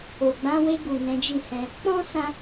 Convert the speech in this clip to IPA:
o˨ ɡ͡b ã˨˦ w e˧ ɡ u˨ n ɛ̃˨˦ d͡ʒ i˦˨ h ɛ̃˧ | k͡p ɔ̃˦ s ã˧

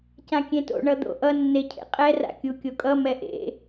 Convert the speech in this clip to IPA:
c ã kʲ ẽ t o̰ ɳ ʌ d̪ o̰ ʔ ʌ nː e cʰ ḛ qʼ ɛ r a̰ kʲ u kʲ o kʼ ʌ m ɛ ʔ ḛ

